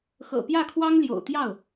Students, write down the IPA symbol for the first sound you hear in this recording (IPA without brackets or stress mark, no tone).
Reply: x